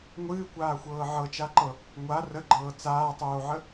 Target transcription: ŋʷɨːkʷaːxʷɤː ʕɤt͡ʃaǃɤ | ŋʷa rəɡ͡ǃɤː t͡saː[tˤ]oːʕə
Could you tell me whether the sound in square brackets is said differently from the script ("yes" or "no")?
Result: no